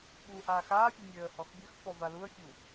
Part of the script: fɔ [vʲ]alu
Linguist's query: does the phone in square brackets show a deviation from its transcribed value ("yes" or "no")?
yes